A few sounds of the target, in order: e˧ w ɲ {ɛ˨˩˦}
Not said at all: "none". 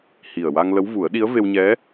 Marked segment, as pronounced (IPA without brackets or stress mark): ɛ˧˥